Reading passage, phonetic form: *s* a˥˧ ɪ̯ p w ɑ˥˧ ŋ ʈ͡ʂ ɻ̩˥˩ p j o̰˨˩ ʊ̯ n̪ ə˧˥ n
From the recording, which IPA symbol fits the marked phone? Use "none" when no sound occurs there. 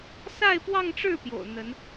s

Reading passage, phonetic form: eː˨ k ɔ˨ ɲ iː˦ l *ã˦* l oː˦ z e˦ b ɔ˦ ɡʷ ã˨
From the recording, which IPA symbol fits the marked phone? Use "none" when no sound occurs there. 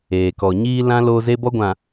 ã˦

